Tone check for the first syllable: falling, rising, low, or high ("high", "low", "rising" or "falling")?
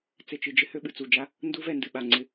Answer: low